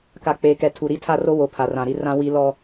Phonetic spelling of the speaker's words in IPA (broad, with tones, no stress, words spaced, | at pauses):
ka˨k͡peː˨kɛ˨ tʰu˨ ɾi˦tʰa˦ro˦ wo˨ pʰa˨rã˨ɾi˦ rã˦wi˦ lɔ˦